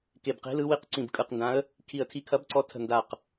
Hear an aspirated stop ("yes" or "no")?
yes